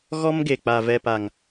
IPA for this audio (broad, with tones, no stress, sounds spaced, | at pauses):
ɣ ɔ˦ m ɡ e˨ k͡p a˨ v ɛ˨ p a˨ ŋ